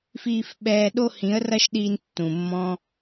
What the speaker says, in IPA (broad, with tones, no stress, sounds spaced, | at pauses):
f iː˧ f ɓ ɛː˧ ɗ o˦ h ĩ˨˦ ə̯ r ɐ˦ ʃ ɗ iː˧ n tː ũ˨ mː ɔ̃˦